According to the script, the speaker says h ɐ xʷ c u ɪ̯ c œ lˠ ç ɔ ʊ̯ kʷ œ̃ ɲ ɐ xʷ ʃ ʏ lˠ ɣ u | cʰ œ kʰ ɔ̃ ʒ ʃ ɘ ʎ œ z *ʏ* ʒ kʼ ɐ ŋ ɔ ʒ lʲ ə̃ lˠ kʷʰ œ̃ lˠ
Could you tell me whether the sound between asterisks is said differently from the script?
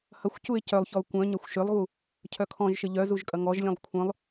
yes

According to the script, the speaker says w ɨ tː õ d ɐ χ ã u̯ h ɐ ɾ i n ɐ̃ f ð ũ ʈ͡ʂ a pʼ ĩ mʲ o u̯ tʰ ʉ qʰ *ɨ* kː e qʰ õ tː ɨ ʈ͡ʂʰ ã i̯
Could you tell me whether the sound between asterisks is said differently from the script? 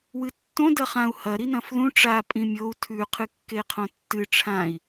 no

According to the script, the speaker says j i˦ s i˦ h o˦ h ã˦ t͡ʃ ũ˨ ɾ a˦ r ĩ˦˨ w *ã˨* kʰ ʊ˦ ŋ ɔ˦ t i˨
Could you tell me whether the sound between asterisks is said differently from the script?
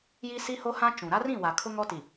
yes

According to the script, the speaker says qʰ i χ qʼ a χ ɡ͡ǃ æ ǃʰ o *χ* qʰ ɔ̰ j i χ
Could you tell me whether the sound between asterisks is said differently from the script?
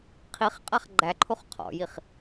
no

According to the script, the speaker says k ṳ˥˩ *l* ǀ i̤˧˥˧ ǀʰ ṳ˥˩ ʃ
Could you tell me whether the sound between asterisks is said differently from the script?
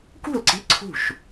no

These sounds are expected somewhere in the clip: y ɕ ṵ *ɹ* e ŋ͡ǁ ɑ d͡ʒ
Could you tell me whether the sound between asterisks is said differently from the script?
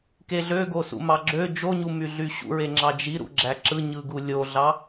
no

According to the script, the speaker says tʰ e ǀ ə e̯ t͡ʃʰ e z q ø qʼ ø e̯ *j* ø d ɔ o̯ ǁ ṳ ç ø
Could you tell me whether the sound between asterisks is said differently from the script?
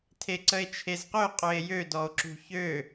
no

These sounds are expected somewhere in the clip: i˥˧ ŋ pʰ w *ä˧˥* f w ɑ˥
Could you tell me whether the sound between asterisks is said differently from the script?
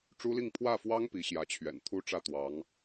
yes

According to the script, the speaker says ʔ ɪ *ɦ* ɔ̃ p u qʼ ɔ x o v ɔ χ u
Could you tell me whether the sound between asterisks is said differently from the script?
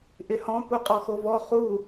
yes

